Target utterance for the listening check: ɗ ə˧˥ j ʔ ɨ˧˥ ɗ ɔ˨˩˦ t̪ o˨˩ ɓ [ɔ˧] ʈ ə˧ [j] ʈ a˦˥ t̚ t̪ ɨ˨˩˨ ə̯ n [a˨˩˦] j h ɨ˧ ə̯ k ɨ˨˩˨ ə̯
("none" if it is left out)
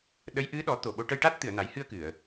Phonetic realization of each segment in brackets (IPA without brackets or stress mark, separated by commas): o˧, j, a˨˩˦